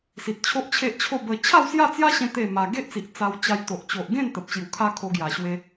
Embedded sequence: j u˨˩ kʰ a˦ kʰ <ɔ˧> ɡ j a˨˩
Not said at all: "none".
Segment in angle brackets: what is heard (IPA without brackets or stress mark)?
o˧